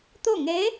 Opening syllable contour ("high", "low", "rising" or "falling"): falling